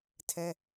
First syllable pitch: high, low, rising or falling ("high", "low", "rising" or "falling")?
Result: high